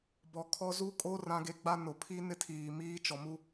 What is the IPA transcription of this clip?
b ɔ˨ kʰ ɔ˦ z u˦ kʼ o˦ r ã˦ ɡ e˦ ɡ͡b a˦ n ʊ˨ pʰ i˦ n ɪ˦ tʰ iː˨ m iː˦ t͡ʃ ɔ˨ m u˦

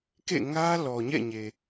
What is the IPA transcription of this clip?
k ḛ˦˨ ŋ ä˦ l ɔ˨ ɲ ɛ̰˦˨ ɲ e˨

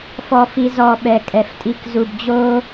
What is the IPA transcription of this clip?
f ɔ˧ f i˧ z ɔ˧ ɓ ɛ˨ kʼ ɛ˨ f tʼ i˧ k z u˨ b d͡ʑ oː˦

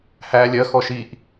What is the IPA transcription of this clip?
h æː lʲ ɜ x ɔ ʃ i ʔ

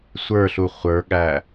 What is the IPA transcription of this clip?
sʷ ə˞ ɬ u χʷ ə˞ ɠ æ

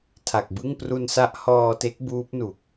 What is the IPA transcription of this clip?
tʰ a˨˩ k̚ b ɯ˥˩ ŋ p r u˧ n s a˦˥ ʔ h ɔː˧ t e˦˥ k̚ b uː˦˥ p̚ n u˨˩ k̚

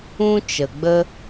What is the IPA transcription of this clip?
ũ˦ t͡ʃ ə˨ ɡ͡b ə˦

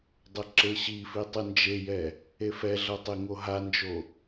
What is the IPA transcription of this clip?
dˤ ʌ ǁ e ɕ i f i tˤ ɯ n d͡ʒ e j ɛ | e f ɛ ɮ ʌ tˤ e ŋ o ɦ a n d͡ʒ o

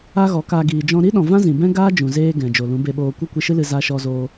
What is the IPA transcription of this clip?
a˦ ɣ ɔ˨˦ k a˧ ɡ iː˨ d͡ʒ ɔ̃˧ ɾ i˦ ɗ ɔ̃˨ v ã˦ z ĩ˨ b ɛ̃˦ ɡ aː˦ d͡ʒ ũ˨ z eː˧ ɡ ɛ̃˨ d͡ʒ o˨ l ũ˨˦ b e˧ ɓ oː˧ kʷ ɛ˦ kʷ i˧ ʃ ɨ˦ l ɨ˧ z a˧ ʃ ɔ˧ z oː˧

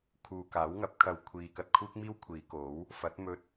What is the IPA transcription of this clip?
kʰ uː˨ k aː˨˥ w ŋ ɐ˨˥ p̚ kʰ ɐ˧ w kʷʰ iː˨ k ɐ˧ t̚ kʰ uː˥ k̚ m iː˥ w kʷʰ iː˨˧ k o˨˥ w | f ɐ˨˥ t̚ m ɵ˧ t̚

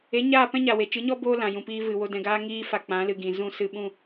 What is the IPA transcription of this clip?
e˨˦ ɲ aː˦˨ p ɛ̃˦ ɲ a˨ w e˨ t͡ʃ ɨ˨˦ ɲ ɔ˦ b oː˦ l ã˨ j ũ˨ p iː˧ v ɨ˨ w o˧ d ɛ̃˨ ɡ aː˧ ŋ iː˧ f a˨ k͡p ã˨˦ l ɨ˨ ɡ ĩ˨ z ũ˦˨ s ɨ˦˨ ɓ ũ˦˨

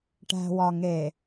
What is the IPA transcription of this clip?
ʈ æ̤˨ w ɒ˨ ŋ e˨

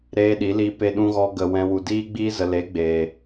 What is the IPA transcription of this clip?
ɾ eː˦ ɗ i˨˦ l i˦ p e˧ ɗ ũ˧ ɣ ɔ˧ ɡ ə˨ w ɛ̃˧ w u˨ d iː˦ ɡ͡b iː˦ z ə˨ l e˨˦ ɡ͡b eː˨

